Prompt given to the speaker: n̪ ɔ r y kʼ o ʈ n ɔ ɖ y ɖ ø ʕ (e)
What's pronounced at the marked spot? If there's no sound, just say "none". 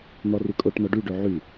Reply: y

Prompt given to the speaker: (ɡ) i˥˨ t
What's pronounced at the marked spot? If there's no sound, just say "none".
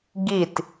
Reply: ɡ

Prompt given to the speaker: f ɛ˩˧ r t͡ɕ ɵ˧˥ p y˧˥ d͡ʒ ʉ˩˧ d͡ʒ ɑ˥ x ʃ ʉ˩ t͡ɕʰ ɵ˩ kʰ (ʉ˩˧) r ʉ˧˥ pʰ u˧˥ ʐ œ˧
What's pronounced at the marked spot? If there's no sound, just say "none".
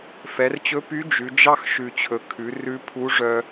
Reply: ʉ˩˧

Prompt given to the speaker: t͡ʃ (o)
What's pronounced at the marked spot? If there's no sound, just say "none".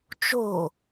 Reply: o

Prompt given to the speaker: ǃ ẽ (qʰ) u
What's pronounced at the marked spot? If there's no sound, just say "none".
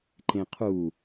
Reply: qʰ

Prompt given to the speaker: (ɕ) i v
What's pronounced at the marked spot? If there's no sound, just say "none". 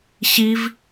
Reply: ɕ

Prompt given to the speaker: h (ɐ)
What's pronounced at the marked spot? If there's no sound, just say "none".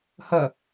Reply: ɐ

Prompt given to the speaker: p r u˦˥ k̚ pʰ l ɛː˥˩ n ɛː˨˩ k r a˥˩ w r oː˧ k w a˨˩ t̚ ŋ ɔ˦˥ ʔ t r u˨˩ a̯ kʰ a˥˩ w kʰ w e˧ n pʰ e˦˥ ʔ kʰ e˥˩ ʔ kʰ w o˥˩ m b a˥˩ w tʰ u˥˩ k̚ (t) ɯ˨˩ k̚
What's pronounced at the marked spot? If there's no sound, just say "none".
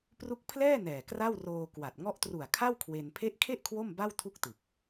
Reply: t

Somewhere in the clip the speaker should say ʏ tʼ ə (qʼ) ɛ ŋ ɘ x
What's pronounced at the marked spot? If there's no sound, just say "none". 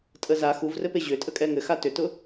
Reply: kʼ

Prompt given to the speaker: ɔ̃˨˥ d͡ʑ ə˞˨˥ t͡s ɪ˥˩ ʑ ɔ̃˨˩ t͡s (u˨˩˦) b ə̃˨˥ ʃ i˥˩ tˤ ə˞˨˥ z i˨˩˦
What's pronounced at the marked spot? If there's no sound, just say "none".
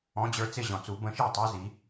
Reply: u˨˩˦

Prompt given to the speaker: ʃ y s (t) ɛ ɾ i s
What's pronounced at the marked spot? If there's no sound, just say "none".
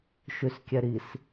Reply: kʲ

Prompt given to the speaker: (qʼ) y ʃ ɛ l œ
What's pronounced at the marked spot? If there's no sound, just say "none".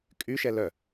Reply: kʼ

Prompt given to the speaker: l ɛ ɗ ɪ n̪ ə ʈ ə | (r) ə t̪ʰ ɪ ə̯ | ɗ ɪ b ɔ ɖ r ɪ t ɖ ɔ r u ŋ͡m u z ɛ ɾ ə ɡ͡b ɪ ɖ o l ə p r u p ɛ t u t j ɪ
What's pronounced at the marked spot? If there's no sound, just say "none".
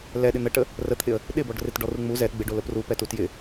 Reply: r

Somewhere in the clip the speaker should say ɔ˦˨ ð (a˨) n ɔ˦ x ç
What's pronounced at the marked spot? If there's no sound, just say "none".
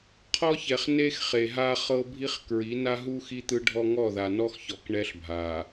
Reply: a˨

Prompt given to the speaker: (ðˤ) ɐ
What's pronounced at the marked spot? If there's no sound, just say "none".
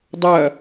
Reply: dˤ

